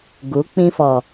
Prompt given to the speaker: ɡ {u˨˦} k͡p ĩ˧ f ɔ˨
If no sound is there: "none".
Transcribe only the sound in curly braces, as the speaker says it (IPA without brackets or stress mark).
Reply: u˨˦